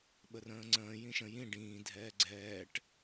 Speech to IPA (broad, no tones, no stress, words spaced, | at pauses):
ɓərə̃ːŋ͡ǀə̃ː jĩʃə̃ jĩ ɖĩː dʱɛːɡ͡ǀɛːʈ